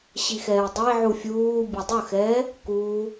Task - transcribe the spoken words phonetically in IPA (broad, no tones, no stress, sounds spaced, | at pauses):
ɕ i x ɛː dˤ e ʕ u fʲ uː bʲ ʊ dˤ ʊ x ɛː | k uː